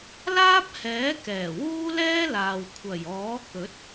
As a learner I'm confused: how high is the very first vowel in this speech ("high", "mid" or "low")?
low